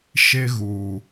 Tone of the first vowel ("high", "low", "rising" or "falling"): high